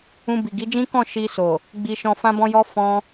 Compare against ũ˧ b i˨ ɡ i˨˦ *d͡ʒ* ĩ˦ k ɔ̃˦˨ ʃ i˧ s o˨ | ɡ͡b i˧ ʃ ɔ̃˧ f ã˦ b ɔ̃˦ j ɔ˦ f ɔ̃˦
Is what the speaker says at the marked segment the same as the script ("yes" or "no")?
yes